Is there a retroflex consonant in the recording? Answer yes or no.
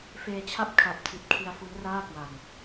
no